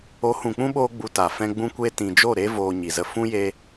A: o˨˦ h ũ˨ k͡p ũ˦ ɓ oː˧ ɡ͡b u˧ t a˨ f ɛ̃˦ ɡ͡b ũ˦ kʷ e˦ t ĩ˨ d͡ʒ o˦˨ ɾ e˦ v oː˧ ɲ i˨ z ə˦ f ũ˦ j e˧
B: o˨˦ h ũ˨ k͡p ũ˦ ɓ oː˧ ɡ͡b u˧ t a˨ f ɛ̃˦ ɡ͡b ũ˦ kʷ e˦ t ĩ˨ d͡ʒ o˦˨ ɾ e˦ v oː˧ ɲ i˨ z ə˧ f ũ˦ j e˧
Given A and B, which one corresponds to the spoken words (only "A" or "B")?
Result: B